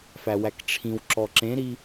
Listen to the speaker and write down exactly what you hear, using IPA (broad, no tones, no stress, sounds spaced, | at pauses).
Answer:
f æ w æ k ʈ͡ʂʰ ĩ w ǁ ɔ ǁ ẽ ɾ i